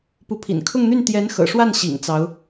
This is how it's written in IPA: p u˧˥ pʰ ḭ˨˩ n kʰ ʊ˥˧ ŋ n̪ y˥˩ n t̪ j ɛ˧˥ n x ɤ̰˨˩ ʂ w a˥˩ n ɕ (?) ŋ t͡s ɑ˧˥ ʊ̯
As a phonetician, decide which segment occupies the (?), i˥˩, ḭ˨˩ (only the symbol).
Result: ḭ˨˩